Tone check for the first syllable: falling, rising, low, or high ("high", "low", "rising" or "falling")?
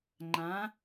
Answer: rising